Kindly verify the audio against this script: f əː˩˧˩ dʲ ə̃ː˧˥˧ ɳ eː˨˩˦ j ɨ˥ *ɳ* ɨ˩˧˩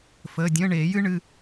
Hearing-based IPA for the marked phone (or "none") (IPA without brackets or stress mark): ɳ